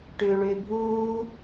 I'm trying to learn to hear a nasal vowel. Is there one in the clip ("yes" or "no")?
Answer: no